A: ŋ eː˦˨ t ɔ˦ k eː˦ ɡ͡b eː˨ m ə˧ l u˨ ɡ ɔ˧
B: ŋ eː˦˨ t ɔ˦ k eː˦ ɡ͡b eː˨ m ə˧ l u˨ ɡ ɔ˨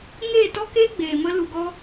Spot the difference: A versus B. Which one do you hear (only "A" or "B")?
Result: A